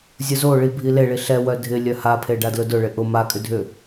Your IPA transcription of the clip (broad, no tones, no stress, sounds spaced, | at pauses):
zʲ ʊ z o ɭ i bʱ i l e ɭ i ɬ ɛ w œ dʱ ɪ lʲ œ h a pʰ e ɖ a d l ʊ d ʊ ɭ ɪ ʔ ʊ m a kʼ ʏ dʱ ʏ